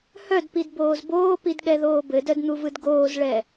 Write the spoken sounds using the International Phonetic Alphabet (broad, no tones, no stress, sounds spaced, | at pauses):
h œ d p i d b oː z b oː p i d ɠ ɛ ð oː b ɘ d œ d n̪ u v ɯ d ɡ oː z ɭ ɛ